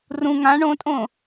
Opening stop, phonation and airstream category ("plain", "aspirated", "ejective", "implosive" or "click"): ejective